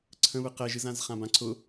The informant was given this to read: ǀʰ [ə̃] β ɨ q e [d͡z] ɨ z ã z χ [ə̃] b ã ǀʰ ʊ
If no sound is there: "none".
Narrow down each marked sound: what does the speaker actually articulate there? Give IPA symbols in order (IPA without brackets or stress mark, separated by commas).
ə̃, ʒ, ã